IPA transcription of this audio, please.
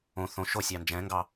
õ θ õ ʃ o sʲ ɑ n d͡ʒ ɛ̃ ŋ ɡ ɑ

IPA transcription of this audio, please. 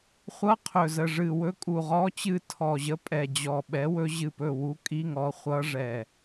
χʷ ʌ˧˥˧ qʰ ɵ˨˩ z ə˨˩ ʐ ɨ˨˩ w ɵ˦˥ kʼ u˨˩ ʁ ɔ˧˥˧ t͡ɕ ɨ˦˨ tʰ ɔ˨˩ ʑ ə˧˥˧ pʼ ɛ˨˩ d͡ʑ ɔ˨˩ ɓ ɛ˨˥ w ɵ˦˥ ʑ ɨ˦˨ p ɵ˦˨ w u˦˥ kʼ i˧˥˧ ŋ ɔ˨˥ χʷ ʌ˦˥ ʐ ɛ˨˩

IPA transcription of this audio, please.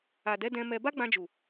a˨ d ɛ˨˦ d ɛ̃˧ m ɛ˧ b a˦ ɡ͡b ã˧ d͡ʒ u˨

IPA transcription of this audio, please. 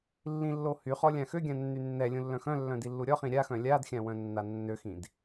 lː ĩ lː o h y χ ɔ lʲ ã x ø ɡʲ ã nː y nː ɛ lʲ ũ lː œ̃ x œ̃ lː œ̃ d i lː u ɾʲ ɔ χ ĩ ɾʲ a x œ̃ lʲ a d xʲ ã w œ̃ nː a nː ø x ĩ d

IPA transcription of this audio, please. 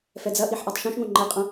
f ɛ d͡z ɐ ʔ i ħ ʔ a tˤ ʃ õ ʃ ŋ õ ŋ͡ǃ ɛ qʼ ɐ̃

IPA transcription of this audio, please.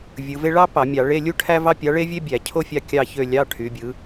vʲ ɯ˩˧ v e˥ ɭ ɑ˥ p ɑ˧˩˧ mʲ ɑ˧˩˧ ɭ e˧˥˧ lʲ u˥ ʈʰ æ˥ v ɑ˥ pʲ ɑ˨˥ ɭ e˥ vʲ e˥ bʲ æ˧˩˧ cʰ o˥ fʲ ɑ˧˥˧ kʲ ɑ˦˨ ç ø˦˨ lʲ ɑ˧˥˧ ʈʰ y˩˧ bʲ ɯ˩˧

